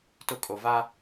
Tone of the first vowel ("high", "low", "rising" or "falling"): falling